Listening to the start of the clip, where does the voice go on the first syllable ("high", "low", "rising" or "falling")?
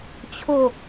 falling